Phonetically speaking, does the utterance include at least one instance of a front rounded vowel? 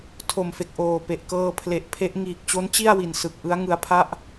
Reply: no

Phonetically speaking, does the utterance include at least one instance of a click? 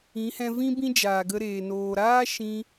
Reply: no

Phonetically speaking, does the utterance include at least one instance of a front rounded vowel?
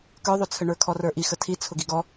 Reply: yes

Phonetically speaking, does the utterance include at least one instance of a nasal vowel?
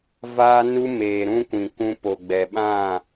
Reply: yes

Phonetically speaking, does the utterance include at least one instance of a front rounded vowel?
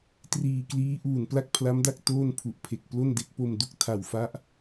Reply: no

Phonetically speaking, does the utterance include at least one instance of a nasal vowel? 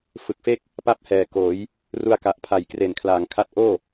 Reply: no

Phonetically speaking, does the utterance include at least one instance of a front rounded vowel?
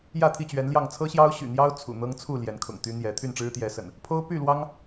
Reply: yes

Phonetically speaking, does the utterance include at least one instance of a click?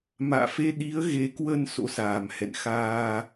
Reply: no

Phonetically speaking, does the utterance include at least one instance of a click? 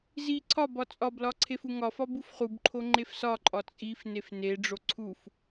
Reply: yes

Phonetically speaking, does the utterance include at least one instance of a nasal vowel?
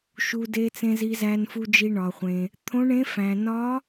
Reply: yes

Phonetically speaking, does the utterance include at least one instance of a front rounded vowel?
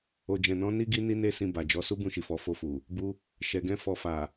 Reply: no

